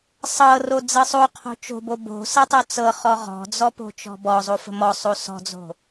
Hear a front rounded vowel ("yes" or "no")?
no